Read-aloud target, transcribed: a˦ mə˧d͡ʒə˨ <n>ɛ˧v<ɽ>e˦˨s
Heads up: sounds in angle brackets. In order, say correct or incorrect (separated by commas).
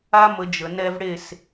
correct, correct